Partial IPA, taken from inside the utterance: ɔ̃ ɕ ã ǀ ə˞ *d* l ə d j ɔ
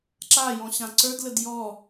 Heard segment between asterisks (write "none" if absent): d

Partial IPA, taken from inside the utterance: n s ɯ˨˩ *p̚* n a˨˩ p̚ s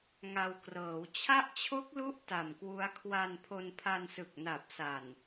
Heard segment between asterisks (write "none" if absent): k̚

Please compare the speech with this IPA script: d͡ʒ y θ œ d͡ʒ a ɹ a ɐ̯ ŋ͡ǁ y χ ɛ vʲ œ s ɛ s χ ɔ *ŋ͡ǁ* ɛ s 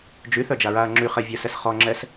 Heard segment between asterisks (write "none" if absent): ŋ͡ǁ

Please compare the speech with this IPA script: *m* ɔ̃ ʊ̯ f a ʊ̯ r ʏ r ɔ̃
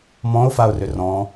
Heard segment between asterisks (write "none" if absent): m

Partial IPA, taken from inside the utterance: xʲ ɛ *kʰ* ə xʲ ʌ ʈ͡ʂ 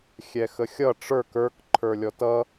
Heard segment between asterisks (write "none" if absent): x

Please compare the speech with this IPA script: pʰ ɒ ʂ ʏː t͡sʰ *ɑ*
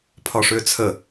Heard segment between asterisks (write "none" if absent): ə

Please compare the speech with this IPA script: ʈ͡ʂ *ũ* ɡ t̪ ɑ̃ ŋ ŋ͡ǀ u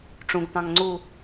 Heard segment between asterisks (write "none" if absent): ũ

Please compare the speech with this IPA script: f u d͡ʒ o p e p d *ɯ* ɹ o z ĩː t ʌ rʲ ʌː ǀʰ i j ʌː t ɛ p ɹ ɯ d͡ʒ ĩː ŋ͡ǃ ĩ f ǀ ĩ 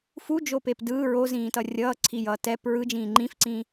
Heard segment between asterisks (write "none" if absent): ɯː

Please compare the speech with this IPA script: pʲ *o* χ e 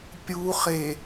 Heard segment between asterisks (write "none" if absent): u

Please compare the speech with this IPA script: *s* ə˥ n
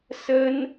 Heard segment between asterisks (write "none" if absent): s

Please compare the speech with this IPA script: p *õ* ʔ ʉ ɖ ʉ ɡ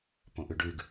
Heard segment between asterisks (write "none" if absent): õ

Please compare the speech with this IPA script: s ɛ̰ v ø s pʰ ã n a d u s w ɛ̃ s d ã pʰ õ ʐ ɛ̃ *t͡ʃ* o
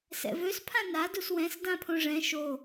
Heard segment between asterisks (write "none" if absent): ʃ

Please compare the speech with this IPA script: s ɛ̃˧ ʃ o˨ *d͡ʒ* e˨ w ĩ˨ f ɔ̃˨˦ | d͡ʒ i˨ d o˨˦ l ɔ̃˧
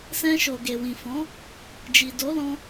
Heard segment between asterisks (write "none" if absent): ɡ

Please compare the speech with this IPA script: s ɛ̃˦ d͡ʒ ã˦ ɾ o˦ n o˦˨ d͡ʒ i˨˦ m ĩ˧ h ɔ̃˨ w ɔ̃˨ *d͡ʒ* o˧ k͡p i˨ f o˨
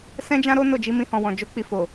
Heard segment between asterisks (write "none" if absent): d͡ʒ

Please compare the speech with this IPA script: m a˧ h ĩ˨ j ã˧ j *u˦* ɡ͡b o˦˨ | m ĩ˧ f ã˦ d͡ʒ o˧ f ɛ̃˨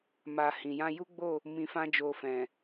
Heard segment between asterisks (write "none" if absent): u˦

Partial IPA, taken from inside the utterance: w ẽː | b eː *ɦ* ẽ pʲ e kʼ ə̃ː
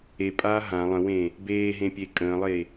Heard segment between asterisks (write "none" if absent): ɦ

